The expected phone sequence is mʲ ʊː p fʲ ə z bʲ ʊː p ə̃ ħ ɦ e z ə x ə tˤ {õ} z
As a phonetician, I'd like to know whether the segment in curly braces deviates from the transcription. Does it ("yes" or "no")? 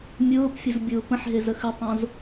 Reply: no